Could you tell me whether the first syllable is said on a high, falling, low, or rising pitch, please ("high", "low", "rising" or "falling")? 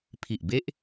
low